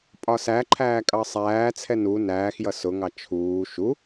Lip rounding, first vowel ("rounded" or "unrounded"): rounded